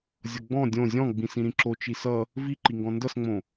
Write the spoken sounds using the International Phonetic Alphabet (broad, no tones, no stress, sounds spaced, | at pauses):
zʲ ʌ ɡ͡b ɔ̃ dʲ õ zʲ ɔ̃ ɡ͡b ĩ s ĩ ɾ ĩ ǁ o t͡ʃ i s ʌ | v i ǃ i ŋ ɡ ɔ̃ n d ʌ s ŋ͡m õ